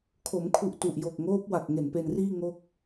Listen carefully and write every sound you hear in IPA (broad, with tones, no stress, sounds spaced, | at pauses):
kʰ o˩˦ m kʰ u˨˩ ʔ t u˨˩ ʔ j o˨˩ k̚ ŋ oː˦˥ p̚ w a˨˩ k̚ ŋ e˨˩ n p e˧ n r iː˥˩ ŋ o˥˩ k̚